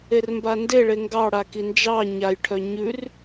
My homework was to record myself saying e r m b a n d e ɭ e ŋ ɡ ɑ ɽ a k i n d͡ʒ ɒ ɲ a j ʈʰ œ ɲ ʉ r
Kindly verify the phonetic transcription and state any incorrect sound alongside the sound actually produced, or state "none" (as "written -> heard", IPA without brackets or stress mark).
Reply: ɒ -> ɑ